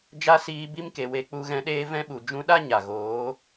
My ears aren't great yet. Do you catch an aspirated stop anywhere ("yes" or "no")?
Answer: no